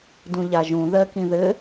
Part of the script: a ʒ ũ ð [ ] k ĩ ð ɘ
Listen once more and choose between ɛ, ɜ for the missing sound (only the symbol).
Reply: ɜ